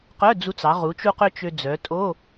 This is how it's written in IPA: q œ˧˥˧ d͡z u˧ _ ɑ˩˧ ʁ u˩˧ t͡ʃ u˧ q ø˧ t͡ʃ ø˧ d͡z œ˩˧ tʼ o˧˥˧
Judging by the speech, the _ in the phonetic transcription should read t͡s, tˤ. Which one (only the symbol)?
t͡s